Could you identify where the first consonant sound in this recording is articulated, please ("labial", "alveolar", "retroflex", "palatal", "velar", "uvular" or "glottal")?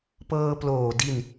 labial